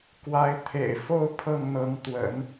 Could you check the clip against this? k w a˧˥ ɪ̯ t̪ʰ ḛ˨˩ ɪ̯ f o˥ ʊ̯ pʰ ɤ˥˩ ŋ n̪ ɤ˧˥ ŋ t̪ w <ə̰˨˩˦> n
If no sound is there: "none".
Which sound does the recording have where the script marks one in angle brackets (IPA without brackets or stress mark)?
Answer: ə̰˨˩˦